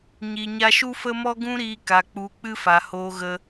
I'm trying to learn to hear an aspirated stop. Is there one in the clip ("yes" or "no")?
no